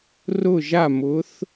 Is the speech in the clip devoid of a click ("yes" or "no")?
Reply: yes